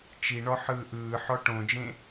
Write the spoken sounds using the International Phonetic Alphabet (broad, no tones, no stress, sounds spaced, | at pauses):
t͡ʃ i ɳ ɔ ħ ɯː ʔ ɯː ħ ɔ ʈ õ d͡ʒ ẽ